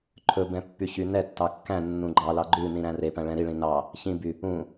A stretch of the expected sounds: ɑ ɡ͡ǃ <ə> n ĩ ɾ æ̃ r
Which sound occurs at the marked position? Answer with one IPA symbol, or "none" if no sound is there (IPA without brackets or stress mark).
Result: ʉ